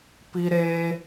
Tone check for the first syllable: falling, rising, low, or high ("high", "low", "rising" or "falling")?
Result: high